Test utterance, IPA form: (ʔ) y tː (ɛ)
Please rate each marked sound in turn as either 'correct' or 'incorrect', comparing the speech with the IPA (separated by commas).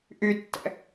correct, incorrect